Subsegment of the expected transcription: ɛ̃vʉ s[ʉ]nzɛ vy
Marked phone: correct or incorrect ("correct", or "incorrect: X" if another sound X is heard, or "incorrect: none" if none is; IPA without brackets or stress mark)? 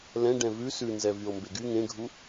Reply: correct